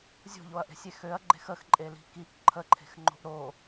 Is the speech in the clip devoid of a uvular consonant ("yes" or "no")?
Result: yes